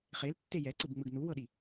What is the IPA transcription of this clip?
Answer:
χ e l tː e j ɛ ǀ ɯ b ŋ͡m ɯ ɡ n u w ɤ ɗ i

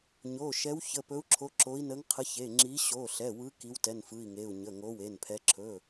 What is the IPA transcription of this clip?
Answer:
ɲ o˩˧˩ ʃ ɛ˨˦ w ç ə˩˧˩ p ɵ˨˦ u̯ ǁʰ o˨˦ ǁ o˨˦ i̯ n ə˨˦ ŋ qʰ ə˨˦ ç e˩˧˩ ŋ͡ǁ i˨˦ ɕ o˩˧˩ ɬ ɛ˩˧˩ w ɯ˨˦ k i˨˦ w t ɛ˩˧˩ n f ɯ˩˧˩ i̯ ŋ e˩˧˩ u̯ ɲ ə˩˧˩ ŋ o˨˦ w e˩˧˩ n pʰ ɛ˨˦ ǁʰ ɵ˩˧˩

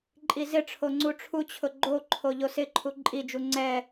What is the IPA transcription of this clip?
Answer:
ǃʼ i z ɪ ʈ͡ʂʰ o ŋ͡ǀ u ʈ͡ʂʰ u t͡ɕʰ ʊ ɡ͡ǃ o ǃʰ o ʎ o s ɪ ǃʰ u ǃʼ i d͡ʒ u ŋ͡ǀ ɛ

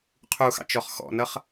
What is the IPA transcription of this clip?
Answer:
qʰ u x ɑ̰ t͡ʃ ɔ χ x ɔ̰ n ʌ χ

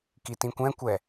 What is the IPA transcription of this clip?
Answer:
k i t ĩ kʷ ɛ̃ kʷ ɛ

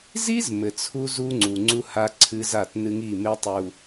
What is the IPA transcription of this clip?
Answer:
z i˦ z m ɘ˨ t͡sʰ u˦ z u˦ ŋ͡ǀ u˨ ŋ͡ǀ u˦ h a˦ ǀʰ ɨ˦ z a˦˨ t n ɨ˦ ŋ i˦˨ m e˦ tˤ u˨

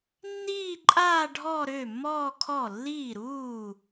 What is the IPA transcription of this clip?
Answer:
nː iː˥˧ ǃʼ aː˥˧ ɖʱ ɔ˥˧ ɾ ø˥˩ mː ɔː˥˧ kʰ ɔ˥˩ lː iː˥˩ ɾ uː˥˩

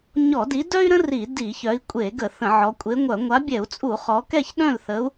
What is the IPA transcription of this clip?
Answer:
ɲ ɔ˧˩˧ d i˨˦ d œ˥ y̯ ɾ ə̃˥ r i˧˩˧ d i˧˩˧ ç œ˨˦ i̯ kʷʼ e˧˩˧ ɡ ə˧˩˧ θ ə̃˧˩˧ ʕ ɔ˨˦ kʷʼ e˨˦ ŋʷ œ˧˩˧ ŋʷ a˨˦ bʲ ɛ˧˩˧ u̯ t͡sʼ u˧˩˧ χ ɔ˨˦ k ɛ˥˨ ç ɗ œ̃˥˨ l θ ə˨˦ u̯

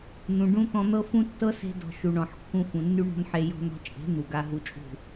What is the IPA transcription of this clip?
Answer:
n̪ ũ˨ ɖ ũ˦ t̪ ɔ̃˧ n̪ ɤ˦ f ũ˦ tː ɤ˦ s e̤˧ d ɔ̤˨ ʃ u˨ ɳ ɔ̃˨ ħ kː ũ˧ f ũ˨ nː y˦ ɳ ɔ̤˦ n ħ e˧ j ɔ̤˧ n ɔ̤˧ t͡ʃʼ e̤˨˦ n̪ u˨ ɡ a˧ ɦ u˧ t͡ʃʼ ṳ˦˨

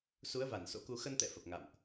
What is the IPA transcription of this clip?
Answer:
s u˨˦ ə̯ v a˧˩ n s o̰˧˥ k u˧ x ə˧ n t̪ ɛ̰˧˨ f ə˨˩ p̚ ŋ a̰˧˨ m ʔ

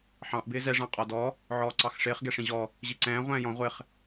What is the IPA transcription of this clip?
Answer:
ħ ɑ̃ ʔ b ɪː z ɛ ʐ ɑ̃ qʼ ɔ d ɔ | ʕ ɔː ǀ ɑ x ʂ ɪː χ ɡ ɛ ʂ ĩ ʑ ɔ | ʑ i ǀ ɛ̃ː ʁʷ ɛ̃ː j ɔ̃ ʁʷ ɪ χ

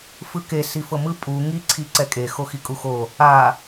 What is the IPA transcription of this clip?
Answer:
f ɯ k e s i f ɤ m ɯ pʼ u ŋ i ǀʰ i ǀ ɛ kʼ e x o x i kʼ u x o | a

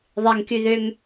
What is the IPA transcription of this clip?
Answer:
ðˤ e ŋ k y ð ø ŋ

